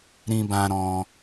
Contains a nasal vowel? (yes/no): yes